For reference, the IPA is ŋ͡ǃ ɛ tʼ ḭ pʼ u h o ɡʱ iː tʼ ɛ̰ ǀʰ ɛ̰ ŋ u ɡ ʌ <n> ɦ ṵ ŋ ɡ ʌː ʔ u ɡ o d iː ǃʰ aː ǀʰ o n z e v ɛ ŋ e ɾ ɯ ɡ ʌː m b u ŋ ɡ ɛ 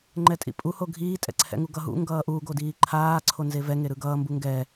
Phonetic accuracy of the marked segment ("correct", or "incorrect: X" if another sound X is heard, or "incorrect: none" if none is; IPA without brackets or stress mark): incorrect: none